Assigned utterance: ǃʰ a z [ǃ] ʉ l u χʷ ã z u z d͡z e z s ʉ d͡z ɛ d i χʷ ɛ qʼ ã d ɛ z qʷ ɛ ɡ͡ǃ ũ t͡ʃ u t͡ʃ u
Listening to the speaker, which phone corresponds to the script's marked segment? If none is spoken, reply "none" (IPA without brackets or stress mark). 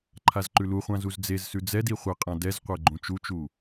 ǃ